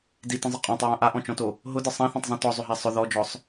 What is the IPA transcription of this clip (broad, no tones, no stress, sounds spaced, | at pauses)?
d i t ə̃ zˤ ə qʼ ɔ̃ tˤ ɹ ã ʔ a ʔ ɔ̃ t͡ʃ ɔ̃ t o | ɦ ʊ d ə sˤ ã θ ɔ̃ tˤ zˤ ĩ t ɔ zˤ ʏ ɦ a sˤ ʊ ð ɔ d͡ʒ ɔ sˤ